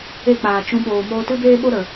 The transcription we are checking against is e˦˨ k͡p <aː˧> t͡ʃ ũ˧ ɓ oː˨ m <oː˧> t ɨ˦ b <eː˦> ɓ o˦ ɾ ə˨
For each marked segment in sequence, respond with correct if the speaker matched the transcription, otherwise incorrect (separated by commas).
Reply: incorrect, correct, correct